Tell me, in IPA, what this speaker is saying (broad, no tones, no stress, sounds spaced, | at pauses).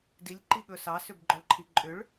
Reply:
d i lʲ ǃ i ɠ ɵ s ɑ s ʏ b ɡ͡ǃ ɔ ɭ ǃʰ i ǃʼ ʏ ɭ